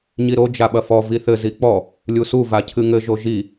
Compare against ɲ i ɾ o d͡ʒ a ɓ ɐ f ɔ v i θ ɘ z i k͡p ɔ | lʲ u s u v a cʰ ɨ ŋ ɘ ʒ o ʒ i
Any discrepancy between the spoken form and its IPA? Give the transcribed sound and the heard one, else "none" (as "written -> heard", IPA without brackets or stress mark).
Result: none